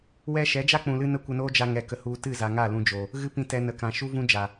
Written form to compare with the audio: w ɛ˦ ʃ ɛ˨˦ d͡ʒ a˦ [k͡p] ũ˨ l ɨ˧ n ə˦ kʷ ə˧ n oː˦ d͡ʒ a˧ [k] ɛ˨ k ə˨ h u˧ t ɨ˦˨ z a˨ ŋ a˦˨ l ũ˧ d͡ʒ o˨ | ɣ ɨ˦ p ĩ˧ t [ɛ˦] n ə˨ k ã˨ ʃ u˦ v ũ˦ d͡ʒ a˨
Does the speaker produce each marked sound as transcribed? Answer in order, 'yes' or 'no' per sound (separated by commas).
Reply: yes, no, no